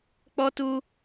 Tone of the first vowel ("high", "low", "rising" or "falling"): high